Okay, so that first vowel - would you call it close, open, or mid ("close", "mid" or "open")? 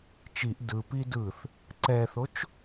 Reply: close